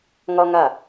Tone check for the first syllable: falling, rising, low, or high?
high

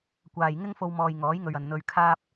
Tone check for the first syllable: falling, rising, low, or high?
low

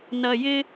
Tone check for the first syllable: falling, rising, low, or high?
low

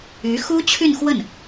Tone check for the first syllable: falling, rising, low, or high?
rising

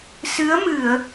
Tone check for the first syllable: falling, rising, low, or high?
rising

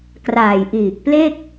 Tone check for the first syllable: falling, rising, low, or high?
low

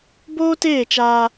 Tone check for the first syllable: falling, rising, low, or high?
high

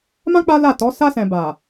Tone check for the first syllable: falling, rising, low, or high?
high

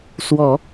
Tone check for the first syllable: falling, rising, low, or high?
low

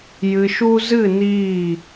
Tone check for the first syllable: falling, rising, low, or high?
low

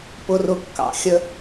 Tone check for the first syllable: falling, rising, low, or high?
low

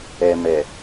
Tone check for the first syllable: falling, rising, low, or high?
low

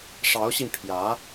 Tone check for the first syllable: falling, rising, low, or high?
rising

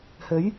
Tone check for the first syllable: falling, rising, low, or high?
rising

